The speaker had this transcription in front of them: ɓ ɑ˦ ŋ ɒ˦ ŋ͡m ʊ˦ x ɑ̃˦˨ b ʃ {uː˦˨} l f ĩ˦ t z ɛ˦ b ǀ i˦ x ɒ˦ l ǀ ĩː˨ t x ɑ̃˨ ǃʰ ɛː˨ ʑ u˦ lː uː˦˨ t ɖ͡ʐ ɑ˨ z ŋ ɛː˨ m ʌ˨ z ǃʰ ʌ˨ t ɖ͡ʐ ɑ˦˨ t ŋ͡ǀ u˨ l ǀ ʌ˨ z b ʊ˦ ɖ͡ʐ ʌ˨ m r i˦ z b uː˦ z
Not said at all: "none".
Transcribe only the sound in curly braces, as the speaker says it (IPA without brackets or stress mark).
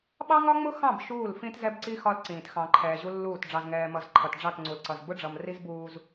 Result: uː˦˨